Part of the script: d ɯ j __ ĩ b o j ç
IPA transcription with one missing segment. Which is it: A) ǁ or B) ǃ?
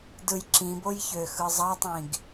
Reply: A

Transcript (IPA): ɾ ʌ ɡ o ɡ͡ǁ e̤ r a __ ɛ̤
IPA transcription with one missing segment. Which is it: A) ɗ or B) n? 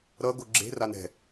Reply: B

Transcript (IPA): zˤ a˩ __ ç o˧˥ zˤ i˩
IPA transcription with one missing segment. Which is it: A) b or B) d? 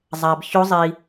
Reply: A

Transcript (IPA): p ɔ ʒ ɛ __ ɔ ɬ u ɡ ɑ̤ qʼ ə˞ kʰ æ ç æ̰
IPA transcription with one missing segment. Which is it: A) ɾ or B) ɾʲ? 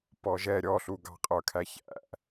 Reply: B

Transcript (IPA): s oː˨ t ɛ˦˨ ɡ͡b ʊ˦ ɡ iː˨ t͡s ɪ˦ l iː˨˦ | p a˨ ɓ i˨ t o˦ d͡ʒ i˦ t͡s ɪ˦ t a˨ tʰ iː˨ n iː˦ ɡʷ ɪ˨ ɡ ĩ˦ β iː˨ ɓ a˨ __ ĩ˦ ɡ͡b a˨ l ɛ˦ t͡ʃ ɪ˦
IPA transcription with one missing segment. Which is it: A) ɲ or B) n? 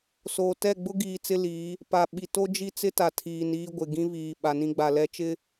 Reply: B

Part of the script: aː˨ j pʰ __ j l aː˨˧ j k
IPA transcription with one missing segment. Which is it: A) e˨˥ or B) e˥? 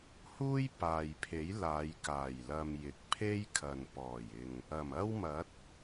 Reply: A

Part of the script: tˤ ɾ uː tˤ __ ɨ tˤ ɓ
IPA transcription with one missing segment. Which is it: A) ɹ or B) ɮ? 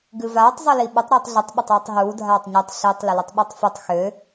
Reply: B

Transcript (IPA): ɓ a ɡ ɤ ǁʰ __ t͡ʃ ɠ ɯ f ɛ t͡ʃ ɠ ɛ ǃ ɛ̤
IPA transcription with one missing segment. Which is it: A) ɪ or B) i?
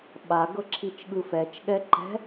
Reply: B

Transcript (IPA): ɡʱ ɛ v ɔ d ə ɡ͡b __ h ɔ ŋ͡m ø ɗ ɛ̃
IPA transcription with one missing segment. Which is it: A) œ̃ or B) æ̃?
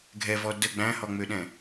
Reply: B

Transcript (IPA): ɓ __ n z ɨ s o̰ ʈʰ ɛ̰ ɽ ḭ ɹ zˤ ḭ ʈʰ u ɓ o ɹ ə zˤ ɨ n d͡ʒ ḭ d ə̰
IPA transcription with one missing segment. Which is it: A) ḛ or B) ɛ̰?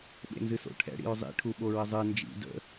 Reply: A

